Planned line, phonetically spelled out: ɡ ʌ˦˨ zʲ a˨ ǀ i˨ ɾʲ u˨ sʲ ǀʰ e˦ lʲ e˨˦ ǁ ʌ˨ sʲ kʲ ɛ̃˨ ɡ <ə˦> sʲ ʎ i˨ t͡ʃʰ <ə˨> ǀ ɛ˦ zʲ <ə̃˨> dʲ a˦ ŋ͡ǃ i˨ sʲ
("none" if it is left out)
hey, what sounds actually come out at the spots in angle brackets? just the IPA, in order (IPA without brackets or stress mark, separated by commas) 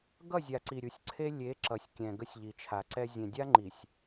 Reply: ə˦, a˨, ɛ̃˨